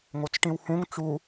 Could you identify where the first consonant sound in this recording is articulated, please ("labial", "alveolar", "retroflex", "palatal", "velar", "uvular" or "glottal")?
velar